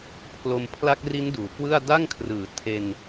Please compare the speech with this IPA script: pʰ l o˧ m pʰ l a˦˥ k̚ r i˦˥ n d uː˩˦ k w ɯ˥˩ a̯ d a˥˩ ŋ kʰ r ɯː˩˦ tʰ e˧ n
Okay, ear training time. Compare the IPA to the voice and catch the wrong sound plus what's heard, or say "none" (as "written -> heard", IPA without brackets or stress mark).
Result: none